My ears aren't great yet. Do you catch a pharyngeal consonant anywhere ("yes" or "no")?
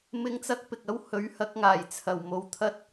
no